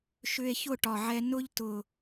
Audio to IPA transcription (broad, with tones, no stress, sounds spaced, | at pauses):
ʃ ʏ˧ e̯ ç ʊ˥˩ ʈ ɒ˨˩ ʕ ɛ˧ n ʊ˥˧ ʎ t ʊ˨˩